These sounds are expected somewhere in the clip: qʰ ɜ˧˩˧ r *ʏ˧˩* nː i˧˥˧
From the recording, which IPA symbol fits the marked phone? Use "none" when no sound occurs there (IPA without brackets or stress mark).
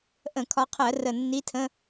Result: ə˧˩